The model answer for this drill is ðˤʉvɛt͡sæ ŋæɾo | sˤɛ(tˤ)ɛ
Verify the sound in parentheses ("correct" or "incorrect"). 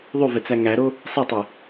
correct